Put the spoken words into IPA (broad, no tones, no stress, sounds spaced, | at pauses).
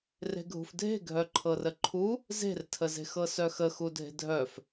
r e̤ ɡʱ ṳ f dʱ e̤ ɡʱ œ ǃʰ ɤ r ə ǃʰ u | z e̤ r tʰ ə z e̤ x ɤ s œ x ə x u dʱ e̤ dʱ œ f